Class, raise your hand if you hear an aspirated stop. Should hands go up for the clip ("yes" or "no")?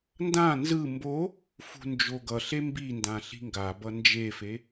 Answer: no